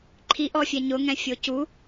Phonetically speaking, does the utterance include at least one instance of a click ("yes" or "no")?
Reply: yes